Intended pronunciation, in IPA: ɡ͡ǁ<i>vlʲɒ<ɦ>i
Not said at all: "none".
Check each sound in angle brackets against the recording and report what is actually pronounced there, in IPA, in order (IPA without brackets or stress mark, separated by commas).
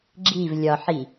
i, ħ